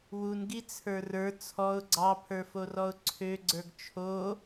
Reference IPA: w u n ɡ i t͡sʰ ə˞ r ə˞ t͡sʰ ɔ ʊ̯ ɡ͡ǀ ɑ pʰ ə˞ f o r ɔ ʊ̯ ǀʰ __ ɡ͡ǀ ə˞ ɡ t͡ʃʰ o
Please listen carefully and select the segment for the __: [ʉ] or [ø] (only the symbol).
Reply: ø